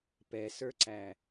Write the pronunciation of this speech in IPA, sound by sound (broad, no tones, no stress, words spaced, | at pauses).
pɛsə˞ǀæ